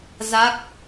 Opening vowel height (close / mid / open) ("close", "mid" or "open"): open